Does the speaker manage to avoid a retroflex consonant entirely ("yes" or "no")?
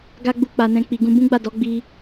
yes